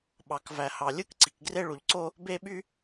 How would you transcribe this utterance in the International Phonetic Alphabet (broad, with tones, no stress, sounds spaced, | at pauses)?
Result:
ɓ ɑ˩ k v æ˩ h ɑ˩ lʲ ɯ˥ k ǀ i˩ k ɡ r e˥ ɭ u˩ ʎ ǀ o˥ | b e˥ ɓ y˥